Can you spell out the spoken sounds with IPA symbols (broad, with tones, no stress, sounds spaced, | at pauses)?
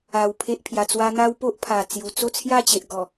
a˧ w pʰ e˦ ʔ pʰ j a˧ t͡s w a˦ n̪ a˦ w p o˦ ʔ pʰ a˨˩ t͡s j u˨˩ t͡s o˥˧ t͡sʰ j a˥˧ t͡ɕ e˨ ʔ ɡ ɔ˨˩